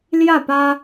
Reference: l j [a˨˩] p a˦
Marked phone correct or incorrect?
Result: incorrect